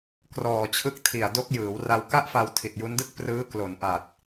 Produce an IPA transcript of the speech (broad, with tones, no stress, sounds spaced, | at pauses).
k r ɔː˨˩ t͡ɕʰ ɯ˦˥ k̚ tʰ i˨˩ a̯ d o˦˥ k̚ j ɯː˩˦ w r a˧ w k a˥˩ ʔ f a˧ w tʰ i˨˩ t̚ j u˦˥ n d ɯ˥˩ k̚ p r ɯː˦˥ k l o˩˦ n ʔ a˨˩ t̚